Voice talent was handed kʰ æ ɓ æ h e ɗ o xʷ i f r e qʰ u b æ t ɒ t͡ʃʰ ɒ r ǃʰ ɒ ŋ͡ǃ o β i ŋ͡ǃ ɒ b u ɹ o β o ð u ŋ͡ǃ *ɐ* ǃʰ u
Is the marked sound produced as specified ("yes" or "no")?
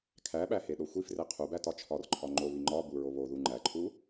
no